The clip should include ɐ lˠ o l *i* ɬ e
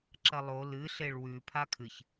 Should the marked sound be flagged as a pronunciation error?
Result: yes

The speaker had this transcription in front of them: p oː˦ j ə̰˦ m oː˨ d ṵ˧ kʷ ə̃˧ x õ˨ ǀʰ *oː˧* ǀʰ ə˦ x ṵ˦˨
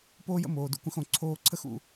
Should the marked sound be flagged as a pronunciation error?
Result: no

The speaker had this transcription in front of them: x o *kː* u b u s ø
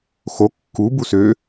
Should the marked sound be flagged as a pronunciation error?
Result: no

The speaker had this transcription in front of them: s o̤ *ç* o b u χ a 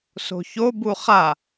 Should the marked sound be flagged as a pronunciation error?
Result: no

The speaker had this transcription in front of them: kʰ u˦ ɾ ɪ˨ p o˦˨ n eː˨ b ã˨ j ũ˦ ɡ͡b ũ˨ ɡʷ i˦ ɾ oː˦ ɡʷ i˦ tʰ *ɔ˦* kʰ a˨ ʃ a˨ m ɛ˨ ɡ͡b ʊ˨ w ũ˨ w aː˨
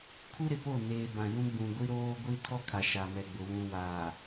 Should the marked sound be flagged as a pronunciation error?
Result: no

